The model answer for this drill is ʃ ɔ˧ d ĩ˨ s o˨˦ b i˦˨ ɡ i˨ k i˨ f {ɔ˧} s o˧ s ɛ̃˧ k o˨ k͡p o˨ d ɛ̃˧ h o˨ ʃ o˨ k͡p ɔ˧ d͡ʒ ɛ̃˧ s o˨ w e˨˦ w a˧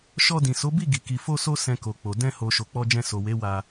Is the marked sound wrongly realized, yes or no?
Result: yes